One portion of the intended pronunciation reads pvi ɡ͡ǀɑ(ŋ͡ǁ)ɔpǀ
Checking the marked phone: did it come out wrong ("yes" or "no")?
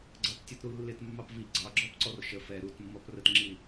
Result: yes